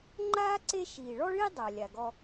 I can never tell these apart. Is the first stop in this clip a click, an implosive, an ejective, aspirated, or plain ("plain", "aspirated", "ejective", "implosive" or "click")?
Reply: click